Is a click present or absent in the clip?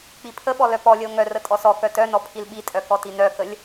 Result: absent